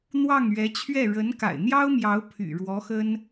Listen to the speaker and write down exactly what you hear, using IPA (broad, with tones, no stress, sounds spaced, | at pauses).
n̪ w ɑ˥˩ ŋ ɥ ɛ˧˥ t͡ɕʰ ɥ ɛ˥˩ ɻ ə˧˥ n k a̰˨˩ ɪ̯ n̪ j ɑ˥ ʊ̯ m j ɑ˧˥ ʊ̯ pʰ y̰˨˩ ɻ w ɔ˧˥ x ə˥ n